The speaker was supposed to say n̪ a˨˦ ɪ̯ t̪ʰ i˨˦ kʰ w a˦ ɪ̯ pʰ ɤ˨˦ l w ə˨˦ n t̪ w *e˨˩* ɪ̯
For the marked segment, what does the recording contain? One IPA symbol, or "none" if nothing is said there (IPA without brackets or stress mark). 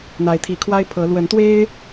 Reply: e˦